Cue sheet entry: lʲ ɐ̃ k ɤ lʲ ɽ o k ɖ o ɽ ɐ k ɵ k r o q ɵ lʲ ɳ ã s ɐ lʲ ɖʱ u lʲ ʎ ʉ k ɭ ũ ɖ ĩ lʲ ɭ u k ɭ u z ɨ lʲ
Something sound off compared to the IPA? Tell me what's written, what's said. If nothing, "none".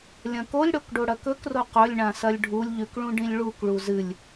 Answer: ɤ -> o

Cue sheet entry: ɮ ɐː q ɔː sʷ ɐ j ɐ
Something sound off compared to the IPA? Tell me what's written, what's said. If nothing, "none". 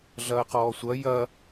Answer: none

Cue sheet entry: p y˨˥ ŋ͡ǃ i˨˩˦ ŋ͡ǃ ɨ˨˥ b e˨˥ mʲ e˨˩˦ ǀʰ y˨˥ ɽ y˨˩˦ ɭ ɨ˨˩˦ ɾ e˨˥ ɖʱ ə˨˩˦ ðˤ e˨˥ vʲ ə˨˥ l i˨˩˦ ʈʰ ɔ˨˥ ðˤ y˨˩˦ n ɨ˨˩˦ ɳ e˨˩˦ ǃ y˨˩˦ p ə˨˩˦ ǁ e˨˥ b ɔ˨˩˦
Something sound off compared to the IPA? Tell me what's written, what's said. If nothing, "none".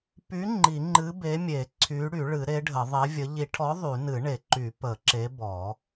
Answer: l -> ʎ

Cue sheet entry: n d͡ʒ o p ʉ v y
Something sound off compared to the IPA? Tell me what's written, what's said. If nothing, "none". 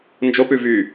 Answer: none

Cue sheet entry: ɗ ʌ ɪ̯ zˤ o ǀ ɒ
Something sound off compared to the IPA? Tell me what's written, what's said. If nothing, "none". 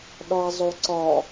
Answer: ʌ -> ɒ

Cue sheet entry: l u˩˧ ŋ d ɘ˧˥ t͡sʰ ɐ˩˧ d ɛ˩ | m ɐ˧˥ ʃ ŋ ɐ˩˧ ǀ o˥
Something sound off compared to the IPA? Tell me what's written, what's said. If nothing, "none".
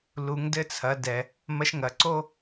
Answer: ɘ˧˥ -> ɘ˧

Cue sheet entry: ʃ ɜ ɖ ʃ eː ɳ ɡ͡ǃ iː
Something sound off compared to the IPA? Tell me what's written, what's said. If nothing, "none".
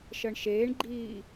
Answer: ɖ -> ɳ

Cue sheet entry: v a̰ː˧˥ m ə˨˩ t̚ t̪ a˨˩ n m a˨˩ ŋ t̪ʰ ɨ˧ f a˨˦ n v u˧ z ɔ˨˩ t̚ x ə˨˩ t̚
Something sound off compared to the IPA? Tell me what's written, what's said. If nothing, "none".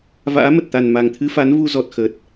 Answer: none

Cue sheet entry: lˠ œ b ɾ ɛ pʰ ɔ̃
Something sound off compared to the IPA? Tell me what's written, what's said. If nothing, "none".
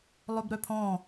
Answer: ɛ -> œ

